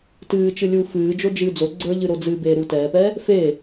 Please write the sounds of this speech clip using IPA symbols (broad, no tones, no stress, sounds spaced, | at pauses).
t ɨː t͡ʃ ɨ lʲ uː f ɨː d͡ʒ o d͡ʒ ɨː d͡z o ɡ͡ǀ ə˞ ʎ ɨ ɾ o d͡z ɨ b eː ɾ u t ɛː p ɛ | f e